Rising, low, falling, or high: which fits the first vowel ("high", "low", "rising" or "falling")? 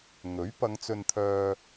rising